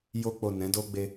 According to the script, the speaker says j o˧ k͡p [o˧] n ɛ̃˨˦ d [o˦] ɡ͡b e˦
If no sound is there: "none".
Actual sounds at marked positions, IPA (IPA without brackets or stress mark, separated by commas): o˨, o˦